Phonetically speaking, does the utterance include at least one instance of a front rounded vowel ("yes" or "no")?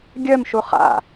yes